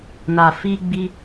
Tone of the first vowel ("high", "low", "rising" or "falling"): low